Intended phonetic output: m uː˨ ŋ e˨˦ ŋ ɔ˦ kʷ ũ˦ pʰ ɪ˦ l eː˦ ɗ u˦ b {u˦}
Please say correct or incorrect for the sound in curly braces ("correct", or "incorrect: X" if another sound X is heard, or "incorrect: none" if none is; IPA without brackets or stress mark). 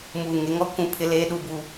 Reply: incorrect: uː˦